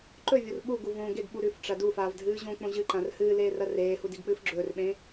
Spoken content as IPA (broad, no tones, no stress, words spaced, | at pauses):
ǃɵvʲor ɓuɡu võ ɡeɡɓu ɾʉfʈ͡ʂɐ dufaːv dʱɨːʑõk͡põ ʑɨǃãr hɨːleː rɐreːhu diɡk͡pɨːfɡ͡ǁɵːrɓẽː